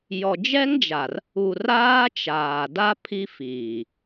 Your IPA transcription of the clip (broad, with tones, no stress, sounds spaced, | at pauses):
j ɔ˨ d͡ʒ ɛ˦ ŋ d͡ʒ a˨ r | u˨ r aː˦ t͡ʃ aː˨ d a˦ pʰ i˦ f iː˨